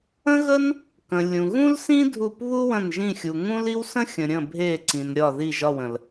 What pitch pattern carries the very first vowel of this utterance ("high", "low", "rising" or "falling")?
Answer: high